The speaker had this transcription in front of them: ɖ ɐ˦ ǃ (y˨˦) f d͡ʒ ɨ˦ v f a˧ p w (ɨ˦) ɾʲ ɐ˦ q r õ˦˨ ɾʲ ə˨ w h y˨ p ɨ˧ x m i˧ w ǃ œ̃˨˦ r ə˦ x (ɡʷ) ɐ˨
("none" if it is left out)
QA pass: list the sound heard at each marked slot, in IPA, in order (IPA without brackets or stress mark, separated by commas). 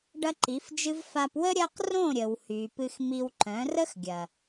i˨˦, ə˦, ɡʲ